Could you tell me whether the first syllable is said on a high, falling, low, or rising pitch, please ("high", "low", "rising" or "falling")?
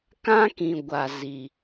high